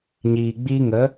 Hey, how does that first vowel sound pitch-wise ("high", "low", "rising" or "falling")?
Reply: low